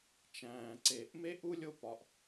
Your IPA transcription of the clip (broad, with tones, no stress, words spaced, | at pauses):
t͡ʃæ̃ː˩ǀe˩ʔ me˥ʔu˥lʲo˦pɒ˨ʔ